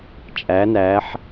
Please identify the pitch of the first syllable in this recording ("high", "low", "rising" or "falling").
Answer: rising